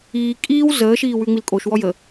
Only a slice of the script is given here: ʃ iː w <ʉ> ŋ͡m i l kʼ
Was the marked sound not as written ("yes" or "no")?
no